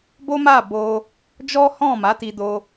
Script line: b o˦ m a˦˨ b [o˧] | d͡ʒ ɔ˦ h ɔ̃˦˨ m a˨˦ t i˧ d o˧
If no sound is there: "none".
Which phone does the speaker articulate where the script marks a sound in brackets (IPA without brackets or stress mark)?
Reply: o˧